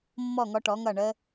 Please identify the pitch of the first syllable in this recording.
falling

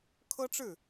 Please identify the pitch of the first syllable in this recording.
high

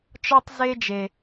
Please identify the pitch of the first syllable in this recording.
high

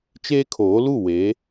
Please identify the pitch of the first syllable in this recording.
high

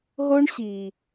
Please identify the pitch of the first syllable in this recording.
high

